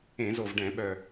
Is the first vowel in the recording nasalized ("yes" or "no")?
yes